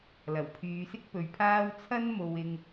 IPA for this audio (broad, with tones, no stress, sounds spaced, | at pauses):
l ɐ˨˩ w pʰ yː˨˧ s ɪ˥ k̚ p ɵ˨ ɥ pʰ aː˥ w t͡sʰ ɐ˥ n m o˨ w ɪ˧ ŋ